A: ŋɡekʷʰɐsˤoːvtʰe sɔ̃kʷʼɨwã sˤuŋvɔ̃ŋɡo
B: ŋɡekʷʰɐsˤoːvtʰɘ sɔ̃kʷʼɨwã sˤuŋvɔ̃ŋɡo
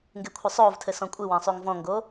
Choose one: B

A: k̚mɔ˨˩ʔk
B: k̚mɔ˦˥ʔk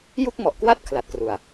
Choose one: A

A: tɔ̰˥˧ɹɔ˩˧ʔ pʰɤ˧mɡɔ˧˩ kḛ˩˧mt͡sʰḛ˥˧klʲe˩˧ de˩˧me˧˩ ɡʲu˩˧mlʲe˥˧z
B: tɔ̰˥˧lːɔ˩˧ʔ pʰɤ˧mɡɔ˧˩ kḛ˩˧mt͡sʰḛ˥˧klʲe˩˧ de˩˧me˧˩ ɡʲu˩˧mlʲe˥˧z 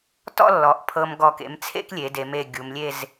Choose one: B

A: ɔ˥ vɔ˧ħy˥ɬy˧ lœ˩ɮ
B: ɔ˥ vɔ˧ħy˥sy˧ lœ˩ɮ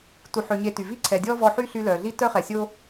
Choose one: A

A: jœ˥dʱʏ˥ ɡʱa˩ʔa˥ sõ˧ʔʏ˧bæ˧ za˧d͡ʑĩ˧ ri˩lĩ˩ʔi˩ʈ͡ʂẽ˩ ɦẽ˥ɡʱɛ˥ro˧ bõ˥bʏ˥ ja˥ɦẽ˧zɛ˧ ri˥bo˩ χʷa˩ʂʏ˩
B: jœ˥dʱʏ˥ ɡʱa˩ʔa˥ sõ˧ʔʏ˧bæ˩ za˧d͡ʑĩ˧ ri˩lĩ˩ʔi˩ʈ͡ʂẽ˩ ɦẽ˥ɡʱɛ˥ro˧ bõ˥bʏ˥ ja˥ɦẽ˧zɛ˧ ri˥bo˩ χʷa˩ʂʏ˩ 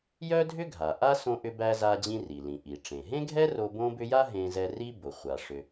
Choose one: A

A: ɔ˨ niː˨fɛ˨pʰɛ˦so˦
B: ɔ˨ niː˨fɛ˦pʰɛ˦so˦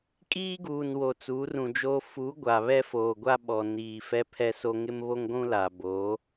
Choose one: B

